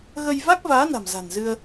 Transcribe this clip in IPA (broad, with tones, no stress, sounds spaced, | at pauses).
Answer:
ɣ ə˧ j v a˦˥ k̚ v aː˨˦ n a̤˨˩ m z a̤˨˩ n z ɨ˧ ə̯